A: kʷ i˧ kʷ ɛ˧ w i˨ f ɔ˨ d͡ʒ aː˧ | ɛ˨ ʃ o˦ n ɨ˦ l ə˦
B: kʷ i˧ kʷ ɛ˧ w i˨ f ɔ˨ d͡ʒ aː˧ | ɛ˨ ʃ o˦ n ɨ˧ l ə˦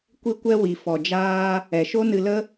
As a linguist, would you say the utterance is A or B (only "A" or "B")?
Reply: B